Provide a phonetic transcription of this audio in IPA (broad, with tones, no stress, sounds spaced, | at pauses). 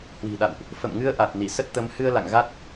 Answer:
h w i̤˨˩ ɗ a̰˧˨ w ʔ | f ə̰˧˨ m ŋ ɨ˧ ə̯ ʔ a˨˩ t̚ n i˧˩ s ə˦˥ t̚ t̪ ə˨˦ m h ɨ˧ ə̯ l a̰˧˨ ŋ ɣ a˦˥ t̚